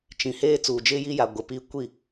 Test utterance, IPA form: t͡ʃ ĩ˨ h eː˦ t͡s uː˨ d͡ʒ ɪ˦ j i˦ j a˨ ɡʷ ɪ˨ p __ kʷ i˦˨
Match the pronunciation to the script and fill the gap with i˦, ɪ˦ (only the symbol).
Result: i˦